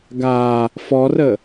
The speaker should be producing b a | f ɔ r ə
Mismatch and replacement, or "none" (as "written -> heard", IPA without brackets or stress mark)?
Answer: b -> ɡ